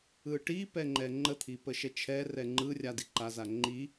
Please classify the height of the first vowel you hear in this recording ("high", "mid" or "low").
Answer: high